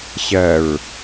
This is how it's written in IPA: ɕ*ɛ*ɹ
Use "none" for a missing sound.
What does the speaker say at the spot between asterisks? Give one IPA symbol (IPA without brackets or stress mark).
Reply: ɜ